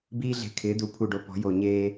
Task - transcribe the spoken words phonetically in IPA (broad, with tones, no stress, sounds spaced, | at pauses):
b iː˧ ɮ e̤˨˩ kʰ ɪː˩˧ d u˩˧ pʰ u˨˩ ɖ o˨˩ p ɔ̤˩˧ j o˨˩ ɲ eː˧